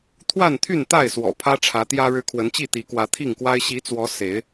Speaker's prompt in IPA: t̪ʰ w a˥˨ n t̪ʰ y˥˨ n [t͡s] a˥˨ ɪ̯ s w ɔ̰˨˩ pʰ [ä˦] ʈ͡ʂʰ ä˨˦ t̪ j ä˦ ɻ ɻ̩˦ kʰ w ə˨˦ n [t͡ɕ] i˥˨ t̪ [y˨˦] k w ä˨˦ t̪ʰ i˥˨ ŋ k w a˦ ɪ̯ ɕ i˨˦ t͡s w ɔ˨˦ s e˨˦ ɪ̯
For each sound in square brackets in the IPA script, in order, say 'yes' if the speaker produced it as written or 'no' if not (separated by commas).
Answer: no, yes, yes, no